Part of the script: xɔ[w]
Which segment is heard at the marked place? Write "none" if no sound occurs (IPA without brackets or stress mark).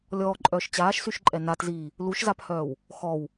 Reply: w